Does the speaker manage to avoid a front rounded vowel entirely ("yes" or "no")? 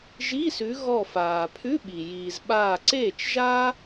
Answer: yes